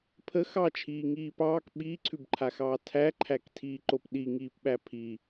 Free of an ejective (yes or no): yes